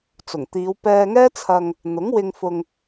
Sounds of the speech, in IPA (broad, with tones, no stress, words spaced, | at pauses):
t͡sʊ˨˩ŋt̪iː˨˧wpɛː˧ŋɛː˥ t͡sʰɐ˧ŋ | n̪ʊ˨˥ŋwɪ˧ŋfʊ˧ŋ